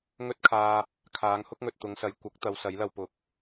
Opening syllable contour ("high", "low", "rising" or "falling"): high